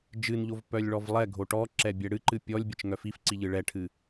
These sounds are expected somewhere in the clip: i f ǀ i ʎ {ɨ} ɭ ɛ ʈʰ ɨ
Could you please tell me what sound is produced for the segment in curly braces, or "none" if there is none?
ɨ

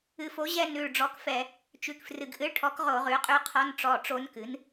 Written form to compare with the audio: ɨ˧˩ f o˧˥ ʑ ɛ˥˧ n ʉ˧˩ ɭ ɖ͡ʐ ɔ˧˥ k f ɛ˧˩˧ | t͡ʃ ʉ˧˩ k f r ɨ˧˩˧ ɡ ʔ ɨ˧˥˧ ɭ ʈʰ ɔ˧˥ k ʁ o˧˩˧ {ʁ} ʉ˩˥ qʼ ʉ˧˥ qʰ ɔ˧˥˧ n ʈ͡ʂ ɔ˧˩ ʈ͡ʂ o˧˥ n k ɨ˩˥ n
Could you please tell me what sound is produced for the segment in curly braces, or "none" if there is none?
ʁ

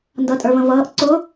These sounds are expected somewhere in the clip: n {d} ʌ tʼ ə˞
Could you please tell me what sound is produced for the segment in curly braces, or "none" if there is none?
d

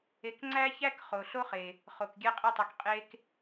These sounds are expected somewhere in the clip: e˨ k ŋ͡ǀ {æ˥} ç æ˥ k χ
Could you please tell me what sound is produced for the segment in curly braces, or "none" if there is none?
æ˥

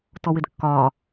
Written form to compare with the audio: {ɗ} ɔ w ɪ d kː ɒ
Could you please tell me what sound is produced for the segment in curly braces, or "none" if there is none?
t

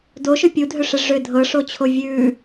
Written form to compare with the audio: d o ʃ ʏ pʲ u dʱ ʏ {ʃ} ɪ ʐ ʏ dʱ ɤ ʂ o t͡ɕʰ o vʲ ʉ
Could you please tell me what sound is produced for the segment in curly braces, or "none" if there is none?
ʂ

